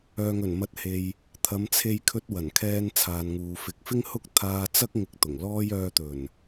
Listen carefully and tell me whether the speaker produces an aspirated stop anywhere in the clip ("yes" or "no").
yes